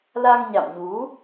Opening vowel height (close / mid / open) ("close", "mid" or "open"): open